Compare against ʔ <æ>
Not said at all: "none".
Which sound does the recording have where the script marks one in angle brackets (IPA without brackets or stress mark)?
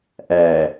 æ